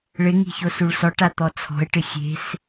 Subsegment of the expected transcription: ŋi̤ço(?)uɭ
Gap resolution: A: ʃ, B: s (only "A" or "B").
B